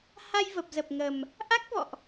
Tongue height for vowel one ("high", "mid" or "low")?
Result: low